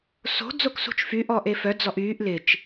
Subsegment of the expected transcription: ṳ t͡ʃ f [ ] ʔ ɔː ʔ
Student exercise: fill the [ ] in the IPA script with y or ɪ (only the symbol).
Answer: y